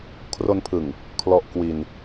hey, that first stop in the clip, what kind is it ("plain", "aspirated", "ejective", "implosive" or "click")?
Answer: aspirated